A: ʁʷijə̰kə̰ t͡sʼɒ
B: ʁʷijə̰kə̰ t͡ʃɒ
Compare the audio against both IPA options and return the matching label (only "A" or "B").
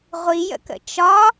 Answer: B